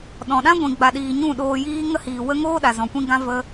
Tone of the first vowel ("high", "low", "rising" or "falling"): low